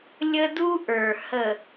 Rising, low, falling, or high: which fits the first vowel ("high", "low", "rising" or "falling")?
high